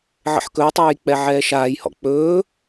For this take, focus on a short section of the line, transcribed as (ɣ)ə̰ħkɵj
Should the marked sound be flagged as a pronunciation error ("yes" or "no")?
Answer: yes